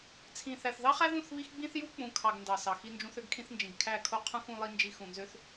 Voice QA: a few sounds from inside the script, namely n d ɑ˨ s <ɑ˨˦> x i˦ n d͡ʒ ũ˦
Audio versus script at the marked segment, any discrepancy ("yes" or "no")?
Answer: yes